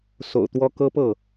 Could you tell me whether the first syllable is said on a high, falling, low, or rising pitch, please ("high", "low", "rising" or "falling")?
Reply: low